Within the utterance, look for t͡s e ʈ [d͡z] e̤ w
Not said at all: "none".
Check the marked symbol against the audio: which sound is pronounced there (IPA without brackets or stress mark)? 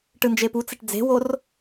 d͡z